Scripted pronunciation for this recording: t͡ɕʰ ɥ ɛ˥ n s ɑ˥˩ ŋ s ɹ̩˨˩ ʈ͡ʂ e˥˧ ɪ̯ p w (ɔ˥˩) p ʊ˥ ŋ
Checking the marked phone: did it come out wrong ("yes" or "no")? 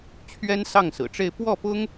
no